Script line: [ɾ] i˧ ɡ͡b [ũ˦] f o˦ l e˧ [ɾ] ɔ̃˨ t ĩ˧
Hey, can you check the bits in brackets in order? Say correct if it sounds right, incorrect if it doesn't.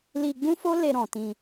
incorrect: l, correct, correct

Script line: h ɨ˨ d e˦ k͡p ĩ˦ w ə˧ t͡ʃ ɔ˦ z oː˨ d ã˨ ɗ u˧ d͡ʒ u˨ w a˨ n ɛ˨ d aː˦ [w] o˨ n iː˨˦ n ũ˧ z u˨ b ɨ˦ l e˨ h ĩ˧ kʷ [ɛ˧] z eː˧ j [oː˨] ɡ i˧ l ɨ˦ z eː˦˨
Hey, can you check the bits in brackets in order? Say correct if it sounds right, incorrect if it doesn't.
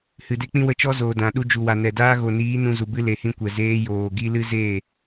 incorrect: ɣ, incorrect: ɛ˨, correct

